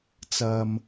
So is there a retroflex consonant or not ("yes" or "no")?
no